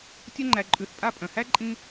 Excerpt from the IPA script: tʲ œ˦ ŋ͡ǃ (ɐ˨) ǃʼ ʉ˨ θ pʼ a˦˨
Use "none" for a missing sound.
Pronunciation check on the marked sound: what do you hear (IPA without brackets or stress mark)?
æ˨